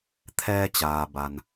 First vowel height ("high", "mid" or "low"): mid